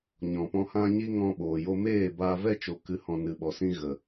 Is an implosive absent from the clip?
no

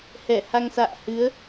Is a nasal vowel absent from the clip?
yes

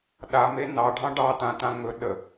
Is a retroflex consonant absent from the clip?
no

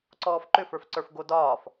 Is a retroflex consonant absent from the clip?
yes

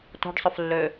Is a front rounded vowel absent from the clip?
no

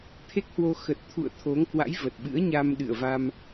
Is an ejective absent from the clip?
yes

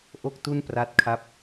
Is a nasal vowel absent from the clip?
yes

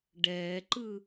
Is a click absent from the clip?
no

